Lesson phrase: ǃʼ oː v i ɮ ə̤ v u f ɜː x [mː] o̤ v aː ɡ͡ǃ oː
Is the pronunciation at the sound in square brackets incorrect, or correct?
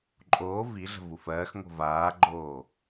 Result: incorrect